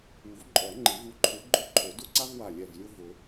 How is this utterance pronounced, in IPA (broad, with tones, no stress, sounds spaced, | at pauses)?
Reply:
u˨˩˦ v ǃʼ ɔ˨˩˦ ŋ͡ǃ ɪ˨˩˦ v u˧˩ ǃʰ ʊ˨˦ ɡ͡ǃ ʊ˥˧ ǃʰ o˨˩˦ d ʊ˥˧ ǀ a˥ v w a˧˩ lʲ ɛ˧˩ v lʲ ʊ˥˧ v ʊ˨˩˦